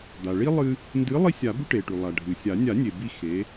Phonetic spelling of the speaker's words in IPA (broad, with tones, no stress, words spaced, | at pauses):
d̪a˩ ɭi˦ lˠɨ˦ | ndɨ˨˦ lˠi˦sʲa˨˩˦bʉ˦ ʈe˩ʈʉ˩ lˠa˩ ɖʱɨ˩sʲa˨˩˦ nʲa˨˩˦nʲe˩ bi˦˨xe˨˦